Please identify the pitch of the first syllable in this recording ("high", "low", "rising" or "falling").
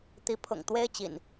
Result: rising